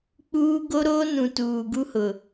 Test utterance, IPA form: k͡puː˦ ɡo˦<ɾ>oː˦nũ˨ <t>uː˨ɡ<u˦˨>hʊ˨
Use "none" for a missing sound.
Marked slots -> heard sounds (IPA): ɾ, t, u˦

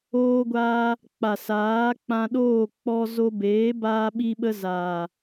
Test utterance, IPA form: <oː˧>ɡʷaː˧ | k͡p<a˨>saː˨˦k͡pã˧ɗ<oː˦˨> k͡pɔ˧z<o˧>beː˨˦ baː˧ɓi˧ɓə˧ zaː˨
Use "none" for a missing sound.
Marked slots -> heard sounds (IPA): oː˧, a˨, oː˦˨, o˧

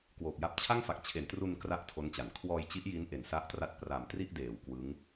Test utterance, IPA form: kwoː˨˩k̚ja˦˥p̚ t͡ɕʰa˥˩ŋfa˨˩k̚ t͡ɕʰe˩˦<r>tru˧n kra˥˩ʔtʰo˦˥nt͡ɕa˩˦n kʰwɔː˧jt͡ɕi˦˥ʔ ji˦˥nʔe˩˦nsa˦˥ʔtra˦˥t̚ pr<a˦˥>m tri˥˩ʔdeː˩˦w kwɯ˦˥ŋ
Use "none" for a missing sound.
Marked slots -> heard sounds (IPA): n, a˨˩

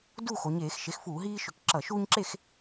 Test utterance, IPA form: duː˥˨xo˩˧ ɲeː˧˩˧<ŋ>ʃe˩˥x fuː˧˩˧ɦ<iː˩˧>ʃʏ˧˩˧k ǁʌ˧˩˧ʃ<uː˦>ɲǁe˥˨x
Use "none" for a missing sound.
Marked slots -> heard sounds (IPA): x, iː˦, uː˦

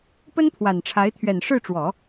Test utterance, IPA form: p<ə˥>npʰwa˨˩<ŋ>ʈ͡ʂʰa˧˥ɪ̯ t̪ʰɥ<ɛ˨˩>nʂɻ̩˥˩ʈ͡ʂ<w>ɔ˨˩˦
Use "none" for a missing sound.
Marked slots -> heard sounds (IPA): ə˥, n, ɛ˨˩, w

